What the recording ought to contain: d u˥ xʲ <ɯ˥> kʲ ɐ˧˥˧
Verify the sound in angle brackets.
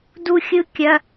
correct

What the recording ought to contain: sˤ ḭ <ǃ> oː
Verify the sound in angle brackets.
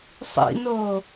incorrect: n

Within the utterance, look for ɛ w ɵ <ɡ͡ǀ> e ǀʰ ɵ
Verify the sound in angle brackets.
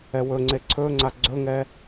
incorrect: ŋ͡ǀ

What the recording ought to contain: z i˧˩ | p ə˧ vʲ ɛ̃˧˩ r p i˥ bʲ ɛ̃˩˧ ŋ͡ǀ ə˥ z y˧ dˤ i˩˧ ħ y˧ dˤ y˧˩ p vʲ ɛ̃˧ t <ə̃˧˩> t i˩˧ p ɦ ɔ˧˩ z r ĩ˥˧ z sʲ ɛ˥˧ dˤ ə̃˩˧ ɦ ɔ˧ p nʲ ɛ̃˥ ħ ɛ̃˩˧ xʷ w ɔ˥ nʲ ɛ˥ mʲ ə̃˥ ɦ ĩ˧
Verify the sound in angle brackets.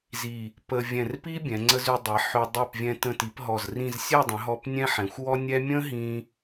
correct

